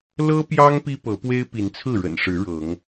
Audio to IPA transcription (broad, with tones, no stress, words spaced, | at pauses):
lɤ˦pjɑ˦ŋ pi˦pɤ˨˦pwe˦ɪ̯ pi˨˦nt͡sʰɹ̩˥˨ɻə̰˨˩nʂɻ̩˨˦ ɻɤ˨˦ŋ